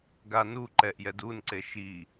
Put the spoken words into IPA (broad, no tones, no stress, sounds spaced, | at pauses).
ɡ a n u ǃ ɛ ʔ j ɛ d u n ǀ e ʃ i